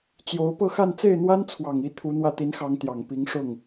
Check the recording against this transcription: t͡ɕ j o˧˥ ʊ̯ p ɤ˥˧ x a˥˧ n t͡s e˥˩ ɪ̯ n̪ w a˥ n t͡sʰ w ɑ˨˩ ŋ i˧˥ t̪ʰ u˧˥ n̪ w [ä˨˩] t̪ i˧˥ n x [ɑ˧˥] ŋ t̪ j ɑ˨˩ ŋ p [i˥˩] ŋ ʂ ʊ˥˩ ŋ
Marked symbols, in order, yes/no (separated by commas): no, yes, no